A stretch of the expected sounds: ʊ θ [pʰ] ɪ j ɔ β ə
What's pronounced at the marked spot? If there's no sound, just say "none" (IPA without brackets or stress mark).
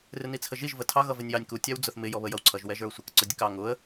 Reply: m